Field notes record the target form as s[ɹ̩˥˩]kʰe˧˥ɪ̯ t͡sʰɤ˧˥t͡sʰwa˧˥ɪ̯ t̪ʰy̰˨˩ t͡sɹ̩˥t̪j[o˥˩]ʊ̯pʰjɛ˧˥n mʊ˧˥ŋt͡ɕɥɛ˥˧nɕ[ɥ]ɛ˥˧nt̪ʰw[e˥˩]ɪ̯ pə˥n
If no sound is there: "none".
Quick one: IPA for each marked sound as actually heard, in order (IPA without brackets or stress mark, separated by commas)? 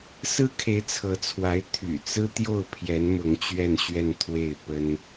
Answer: ɹ̩˥, o˥˩, ɥ, e˥˩